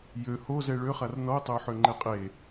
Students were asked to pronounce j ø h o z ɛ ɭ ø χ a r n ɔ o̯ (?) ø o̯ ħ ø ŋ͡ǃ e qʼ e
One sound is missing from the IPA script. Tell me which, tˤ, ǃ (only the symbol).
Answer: tˤ